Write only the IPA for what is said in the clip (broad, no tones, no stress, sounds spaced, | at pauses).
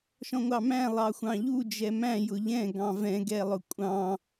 ʃ ɔ̃ ŋʷ ɑ m æ̃ lˠ ɑ xʷ ɑ̃ ʎ u d͡ʒ ɛ m æ̃ j ʊ ʎ ɛ̃ ɡ ɑ̃ v ɛ̃ ɡ ɛ lˠ ʊ kʷʼ ɑ̃